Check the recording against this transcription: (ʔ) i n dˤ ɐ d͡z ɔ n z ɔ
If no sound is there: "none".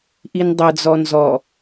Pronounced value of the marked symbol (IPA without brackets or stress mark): ʔ